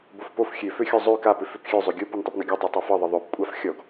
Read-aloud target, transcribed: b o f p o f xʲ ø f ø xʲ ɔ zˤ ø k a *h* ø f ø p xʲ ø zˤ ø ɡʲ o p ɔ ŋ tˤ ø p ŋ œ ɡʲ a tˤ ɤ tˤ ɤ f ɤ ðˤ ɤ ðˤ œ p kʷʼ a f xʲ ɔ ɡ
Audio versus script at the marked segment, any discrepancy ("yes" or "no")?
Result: yes